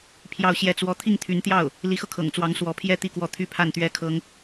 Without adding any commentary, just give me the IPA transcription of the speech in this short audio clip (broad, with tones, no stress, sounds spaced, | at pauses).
pʰ j ɑ˥˧ ʊ̯ ɕ j ɛ˥˧ t͡s w ɔ˥˧ t̪ʰ i˥˩ ŋ t̪ʰ y˧˥ n t̪ j ɑ˥˩ ʊ̯ | l i˧˥ x ɤ˧ kʰ ɤ̰˨˩ ŋ t͡s w ɑ˧˥ ŋ s w ɔ˧˥ pʰ j ɛ˥ t̪ i˥˧ k w ɔ˥˩ t̪ʰ y˥ pʰ a˥˩ n t̪ ɥ ɛ˥ kʰ ɤ˥ ŋ